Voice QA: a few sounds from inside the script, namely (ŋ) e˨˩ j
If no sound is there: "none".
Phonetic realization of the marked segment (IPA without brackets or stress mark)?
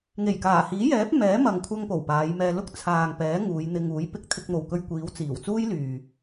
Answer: ŋ